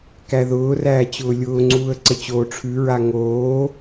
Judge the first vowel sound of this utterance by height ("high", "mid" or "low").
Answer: low